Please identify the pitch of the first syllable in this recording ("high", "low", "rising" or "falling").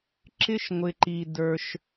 high